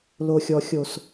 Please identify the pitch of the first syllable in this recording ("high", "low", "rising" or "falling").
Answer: low